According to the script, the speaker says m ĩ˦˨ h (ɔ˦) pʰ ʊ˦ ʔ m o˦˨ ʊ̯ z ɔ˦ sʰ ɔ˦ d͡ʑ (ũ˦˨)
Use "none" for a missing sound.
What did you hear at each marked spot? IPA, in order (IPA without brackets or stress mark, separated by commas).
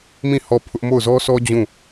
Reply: ɔ˦˨, ũ˦˨